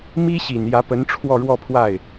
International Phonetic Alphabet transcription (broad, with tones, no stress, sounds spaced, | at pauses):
m i˥ ɕ i˨˩ n j ä˧˥ p ə˧˥ n ʈ͡ʂʰ w ɔ˥˧ ɻ w ɔ˥˧ pʰ w a˥˩ ɪ̯